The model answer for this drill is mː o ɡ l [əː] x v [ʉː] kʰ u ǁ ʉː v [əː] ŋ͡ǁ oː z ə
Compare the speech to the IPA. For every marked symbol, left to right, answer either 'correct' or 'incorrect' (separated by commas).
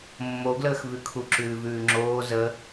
correct, incorrect, incorrect